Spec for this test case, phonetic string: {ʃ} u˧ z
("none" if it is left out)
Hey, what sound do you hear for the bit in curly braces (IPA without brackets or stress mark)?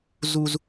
z